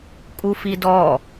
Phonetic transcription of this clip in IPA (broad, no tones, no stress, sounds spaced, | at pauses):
kʼ u f i d ɔ